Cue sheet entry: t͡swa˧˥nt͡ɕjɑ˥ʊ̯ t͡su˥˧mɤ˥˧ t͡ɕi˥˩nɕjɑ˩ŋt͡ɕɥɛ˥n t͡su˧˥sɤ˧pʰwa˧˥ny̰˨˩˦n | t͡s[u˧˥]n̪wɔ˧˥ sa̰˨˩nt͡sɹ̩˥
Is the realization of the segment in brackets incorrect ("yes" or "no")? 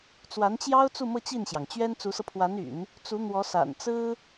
no